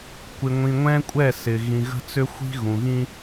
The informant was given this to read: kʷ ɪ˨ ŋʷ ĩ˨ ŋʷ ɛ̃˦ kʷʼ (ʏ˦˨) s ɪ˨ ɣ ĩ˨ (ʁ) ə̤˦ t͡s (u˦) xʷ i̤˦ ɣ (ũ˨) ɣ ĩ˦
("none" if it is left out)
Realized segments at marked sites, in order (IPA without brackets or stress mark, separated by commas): ɛ˦˨, ɣ, ʏ˦, ũ˨